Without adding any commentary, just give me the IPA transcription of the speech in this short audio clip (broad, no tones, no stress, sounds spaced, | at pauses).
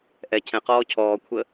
ʔ ɛ cʰ ɛ̃ q ɔː cʰ ɔː kʷʰ ə